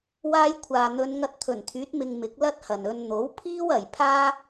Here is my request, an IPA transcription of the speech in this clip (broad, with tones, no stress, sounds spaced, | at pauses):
w aː˧ j kʷʰ aː˨ n̪ ɵ˨˧ n ŋ ɐ˧ t̚ t̪ʰ ɵ˨˩ n t̪ʰ yː˨˥ t̚ m ɪ˧ ŋ m ɪ˨˥ k̚ l ɐ˥ t̚ h ɐ˨ n ɵ˧ n n̪ o˨˥ w pʰ iː˥ w ɐ˨ j pʰ aː˥